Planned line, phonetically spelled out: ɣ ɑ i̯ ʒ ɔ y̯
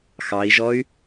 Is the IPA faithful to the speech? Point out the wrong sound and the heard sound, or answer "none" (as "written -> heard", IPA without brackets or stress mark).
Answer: ɣ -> x